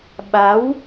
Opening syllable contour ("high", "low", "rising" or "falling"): rising